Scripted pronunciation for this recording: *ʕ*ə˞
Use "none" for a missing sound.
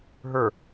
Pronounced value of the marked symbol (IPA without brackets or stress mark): ɦ